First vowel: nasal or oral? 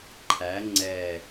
oral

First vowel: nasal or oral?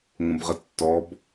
nasal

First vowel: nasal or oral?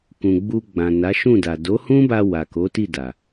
nasal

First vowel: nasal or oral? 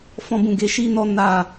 nasal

